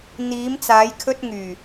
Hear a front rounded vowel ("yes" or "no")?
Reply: yes